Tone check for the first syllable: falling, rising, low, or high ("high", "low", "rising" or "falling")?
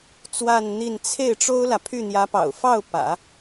falling